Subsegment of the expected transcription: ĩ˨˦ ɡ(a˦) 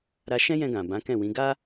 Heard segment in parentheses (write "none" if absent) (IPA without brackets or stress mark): a˦